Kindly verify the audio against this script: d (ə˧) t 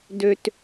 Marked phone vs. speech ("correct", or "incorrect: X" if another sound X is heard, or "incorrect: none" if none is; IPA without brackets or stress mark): incorrect: ø˧